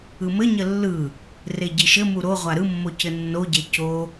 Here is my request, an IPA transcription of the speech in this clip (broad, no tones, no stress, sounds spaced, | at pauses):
ɯ m ɘ ɲ ə lː ɯ | r e ɟ i ʃ ɘ m u ɾ o ʁʷ a ɾ ɯ mː o c ɘ nː o ɟ e c o